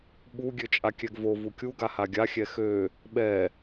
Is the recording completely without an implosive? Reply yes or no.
no